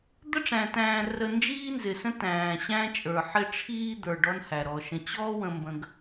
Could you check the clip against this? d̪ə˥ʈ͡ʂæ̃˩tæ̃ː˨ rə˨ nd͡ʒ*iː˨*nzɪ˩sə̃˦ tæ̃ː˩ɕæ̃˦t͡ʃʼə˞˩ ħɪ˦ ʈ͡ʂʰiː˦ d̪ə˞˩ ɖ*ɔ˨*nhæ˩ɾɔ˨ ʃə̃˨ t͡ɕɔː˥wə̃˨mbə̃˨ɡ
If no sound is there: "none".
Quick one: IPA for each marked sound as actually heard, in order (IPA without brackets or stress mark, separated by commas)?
iː˦, ɔ˦